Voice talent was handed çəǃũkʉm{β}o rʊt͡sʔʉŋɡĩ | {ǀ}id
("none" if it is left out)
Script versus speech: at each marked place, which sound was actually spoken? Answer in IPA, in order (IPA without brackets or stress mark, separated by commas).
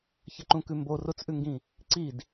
b, ǀ